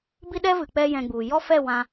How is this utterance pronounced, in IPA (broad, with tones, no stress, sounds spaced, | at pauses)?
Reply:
b i˦ ɗ ɛ˦ v ɨ˨ k͡p ɛ˦ j ɛ̃˧ ɡ͡b u˨ j ɔ˦ f ɛ˦˨ w ã˧